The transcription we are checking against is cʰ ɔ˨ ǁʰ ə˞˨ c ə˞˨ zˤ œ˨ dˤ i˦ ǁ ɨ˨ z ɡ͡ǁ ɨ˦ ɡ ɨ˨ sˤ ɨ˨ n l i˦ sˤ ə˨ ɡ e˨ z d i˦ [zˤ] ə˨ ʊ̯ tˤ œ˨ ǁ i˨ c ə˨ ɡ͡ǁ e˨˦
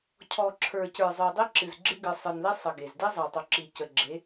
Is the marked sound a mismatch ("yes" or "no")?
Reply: no